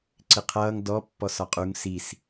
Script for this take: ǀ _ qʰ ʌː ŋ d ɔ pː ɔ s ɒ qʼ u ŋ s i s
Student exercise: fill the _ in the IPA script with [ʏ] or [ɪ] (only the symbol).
ɪ